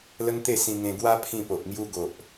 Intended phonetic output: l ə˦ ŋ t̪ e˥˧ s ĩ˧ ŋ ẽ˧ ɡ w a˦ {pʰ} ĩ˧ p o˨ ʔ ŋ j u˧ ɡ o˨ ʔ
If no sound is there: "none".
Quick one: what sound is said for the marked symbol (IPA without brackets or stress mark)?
pʰ